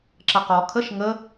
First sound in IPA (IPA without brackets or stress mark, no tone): ǁ